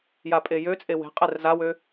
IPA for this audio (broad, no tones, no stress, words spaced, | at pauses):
japʼejøt͡sʼe we̤ qʼɛrzawø